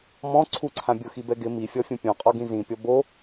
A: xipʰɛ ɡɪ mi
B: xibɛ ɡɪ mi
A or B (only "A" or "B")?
B